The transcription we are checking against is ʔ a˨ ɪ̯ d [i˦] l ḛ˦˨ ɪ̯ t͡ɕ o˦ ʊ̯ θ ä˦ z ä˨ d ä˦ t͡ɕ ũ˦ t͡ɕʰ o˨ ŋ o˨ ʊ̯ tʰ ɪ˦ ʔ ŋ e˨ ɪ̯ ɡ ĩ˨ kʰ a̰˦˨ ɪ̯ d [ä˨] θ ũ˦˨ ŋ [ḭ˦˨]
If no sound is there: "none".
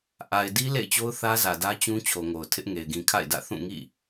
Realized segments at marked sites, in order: i˦, ä̰˦˨, ḭ˦˨

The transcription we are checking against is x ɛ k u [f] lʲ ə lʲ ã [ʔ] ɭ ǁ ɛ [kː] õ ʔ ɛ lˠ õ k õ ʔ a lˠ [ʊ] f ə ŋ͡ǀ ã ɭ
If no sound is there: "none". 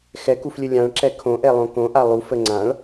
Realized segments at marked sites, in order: f, none, kʰ, u

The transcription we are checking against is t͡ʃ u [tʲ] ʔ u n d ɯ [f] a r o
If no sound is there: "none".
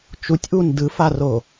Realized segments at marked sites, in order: tʲ, f

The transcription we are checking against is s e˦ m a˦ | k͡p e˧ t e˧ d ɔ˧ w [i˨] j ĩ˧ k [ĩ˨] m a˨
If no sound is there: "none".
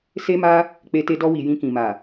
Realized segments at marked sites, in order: i˨, ĩ˨

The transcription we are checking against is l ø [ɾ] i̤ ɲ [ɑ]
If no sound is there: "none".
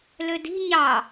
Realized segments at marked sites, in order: d, ɑ

